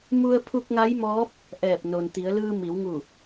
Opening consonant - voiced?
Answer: yes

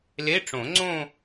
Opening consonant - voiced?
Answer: yes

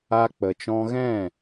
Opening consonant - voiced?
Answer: no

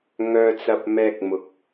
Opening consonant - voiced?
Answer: yes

